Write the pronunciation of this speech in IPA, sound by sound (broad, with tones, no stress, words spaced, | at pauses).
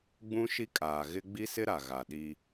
ɡ͡bũ˦ʃi˦kʼaː˨ ɣɪ˦ ɡ͡bi˦sɪ˦ɾa˨ ɣa˨ɗi˦